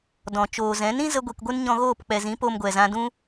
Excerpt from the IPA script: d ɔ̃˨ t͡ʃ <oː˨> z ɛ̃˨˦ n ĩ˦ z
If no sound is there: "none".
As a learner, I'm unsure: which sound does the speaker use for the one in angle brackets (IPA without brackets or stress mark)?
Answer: oː˨